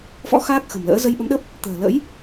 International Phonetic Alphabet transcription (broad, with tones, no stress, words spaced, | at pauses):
fɔ̰˧˥ xaː˦˥k̚xə̤˨˩mlə̰ː˧˥ zə˧jɓə˨˦mɗə˦˥p̚ | t̪ə̤ː˨˩lə̰˧˥j